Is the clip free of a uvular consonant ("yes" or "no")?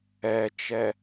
yes